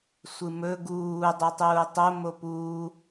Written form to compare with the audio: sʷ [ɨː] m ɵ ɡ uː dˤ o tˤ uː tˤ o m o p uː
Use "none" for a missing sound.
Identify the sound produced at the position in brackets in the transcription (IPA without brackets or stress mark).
ɨ